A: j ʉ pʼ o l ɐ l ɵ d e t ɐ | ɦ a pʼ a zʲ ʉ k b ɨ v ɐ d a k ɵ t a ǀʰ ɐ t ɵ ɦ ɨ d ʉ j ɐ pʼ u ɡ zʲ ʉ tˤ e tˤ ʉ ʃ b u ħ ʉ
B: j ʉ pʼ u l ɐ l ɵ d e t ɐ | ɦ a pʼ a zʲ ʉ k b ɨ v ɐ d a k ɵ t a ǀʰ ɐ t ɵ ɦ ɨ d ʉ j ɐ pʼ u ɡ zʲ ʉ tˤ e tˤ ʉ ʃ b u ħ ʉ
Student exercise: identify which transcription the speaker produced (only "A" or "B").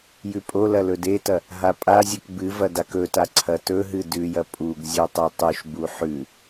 A